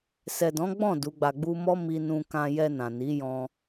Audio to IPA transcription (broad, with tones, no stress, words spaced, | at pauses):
sɛ˨dɔ̃˨˦ɡ͡bɔ̃˦˨ du˨˦ɡ͡ba˧ɡ͡bu˦ mɔ˦ mi˧nũ˧kã˧ jɛ˧nã˨ni˨˦ jɔ̃˧